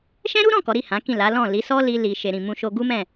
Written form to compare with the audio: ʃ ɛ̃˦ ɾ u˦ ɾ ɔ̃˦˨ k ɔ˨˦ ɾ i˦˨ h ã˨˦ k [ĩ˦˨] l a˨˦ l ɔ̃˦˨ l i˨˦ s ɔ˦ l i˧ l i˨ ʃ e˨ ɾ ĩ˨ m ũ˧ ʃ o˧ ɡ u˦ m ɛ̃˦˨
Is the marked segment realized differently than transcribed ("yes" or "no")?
no